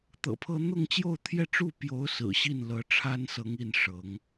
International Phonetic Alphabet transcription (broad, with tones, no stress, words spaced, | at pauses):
t̪ɤ̰˨˩pʰɤ˥ n̪ʊ˥˧ŋt͡ɕjo˥˧ʊ̯t̪ʰjɛ˥˧ ʈ͡ʂu˥˩pjo˧˥ʊ̯sɹ̩˨˩ ɕi˥˩nlɤ˧˥ʈ͡ʂʰa˥nsɤ˧˥ŋ i˥˩n ʂɤ˧˥ŋ